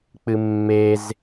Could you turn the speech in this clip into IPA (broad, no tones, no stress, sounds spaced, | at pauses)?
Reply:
k͡p ɨ mː e z